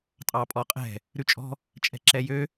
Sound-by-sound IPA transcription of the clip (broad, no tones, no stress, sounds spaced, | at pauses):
tʼ ɑ pʼ ɔ qʼ ɛ̤ | ɾ ʉ t͡ʃʼ ɔ̤ | t͡ʃʼ ɛ̤ ǁ ɛ j ø